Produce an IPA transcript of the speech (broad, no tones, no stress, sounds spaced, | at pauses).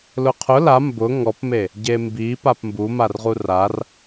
l ʊ qʰ ʊ l a m b ʊ ŋ ɔ p m e | ɟ e m b i p a p m b u m a r ʁ u r a r